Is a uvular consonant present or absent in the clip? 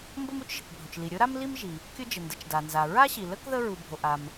absent